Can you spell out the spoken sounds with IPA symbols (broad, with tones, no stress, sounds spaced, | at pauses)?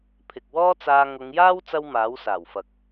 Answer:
pʰ ɪ˨ k̚ w ɔː˥ t͡s aː˧ ŋ ʊ˨˧ ŋ j aː˥ w t͡s ɐ˥ w m aː˨˥ w s aː˨˩ w f ɐ˨ k̚